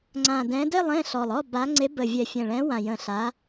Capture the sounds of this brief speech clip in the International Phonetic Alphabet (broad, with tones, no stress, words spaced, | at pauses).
ŋ͡ǀã˨˩dɛ̃˨˦de˥˨lˠ ẽ˥˨ɬɔ˨˩lˠɔ˥˨ ba˨˦ ŋ͡ǀe˨˦bə˨˩vʲɛ˨˩ fʲɛ̃˨˩ɭɛ̃˨˦wã˨˩jə̃˨˩ ɬa˨˦